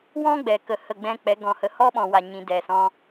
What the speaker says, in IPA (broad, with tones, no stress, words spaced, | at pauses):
wɔ̃˦ɡ͡bɛ˨ kə˨ hə˦˨ɡ͡bɛ̃˦k͡pɛ˨˦ ɡɔ̃˨hə˨ hɔ˦ɓɔ̃˨wa˨ ɲĩ˨ dɛ˨sɔ̃˧